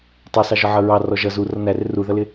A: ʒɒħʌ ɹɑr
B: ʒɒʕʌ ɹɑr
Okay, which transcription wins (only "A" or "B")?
B